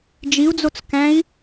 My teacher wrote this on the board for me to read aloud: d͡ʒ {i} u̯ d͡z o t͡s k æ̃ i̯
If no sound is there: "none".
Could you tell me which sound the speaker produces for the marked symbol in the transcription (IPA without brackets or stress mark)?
i